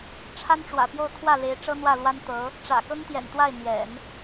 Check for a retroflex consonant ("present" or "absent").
present